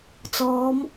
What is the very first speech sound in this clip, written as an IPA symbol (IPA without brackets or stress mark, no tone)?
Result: t͡s